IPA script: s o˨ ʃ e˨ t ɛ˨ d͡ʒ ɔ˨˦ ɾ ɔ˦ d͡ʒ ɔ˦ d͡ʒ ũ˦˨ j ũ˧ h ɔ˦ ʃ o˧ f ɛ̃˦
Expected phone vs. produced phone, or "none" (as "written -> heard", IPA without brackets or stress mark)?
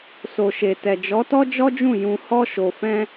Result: ɾ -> t